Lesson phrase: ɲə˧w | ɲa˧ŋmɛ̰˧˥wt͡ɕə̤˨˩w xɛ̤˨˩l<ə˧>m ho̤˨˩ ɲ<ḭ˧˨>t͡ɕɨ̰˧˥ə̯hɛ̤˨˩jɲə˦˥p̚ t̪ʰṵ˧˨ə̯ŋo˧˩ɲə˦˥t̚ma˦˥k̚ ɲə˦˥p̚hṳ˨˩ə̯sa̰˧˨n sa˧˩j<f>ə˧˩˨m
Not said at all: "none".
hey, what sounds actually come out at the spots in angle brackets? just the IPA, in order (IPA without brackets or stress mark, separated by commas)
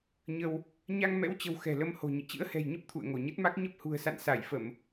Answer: ə˧, ḭ˧˨, f